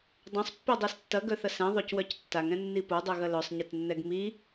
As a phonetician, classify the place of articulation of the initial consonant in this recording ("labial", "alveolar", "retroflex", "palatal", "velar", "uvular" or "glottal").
alveolar